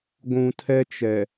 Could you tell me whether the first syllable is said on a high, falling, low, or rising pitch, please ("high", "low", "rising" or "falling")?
low